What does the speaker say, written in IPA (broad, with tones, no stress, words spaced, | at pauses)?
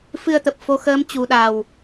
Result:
fɨ˧ə̯t̪ə˨˩p̚ fo˧xəː˧m t͡ɕu˨˩ɗa˨˩w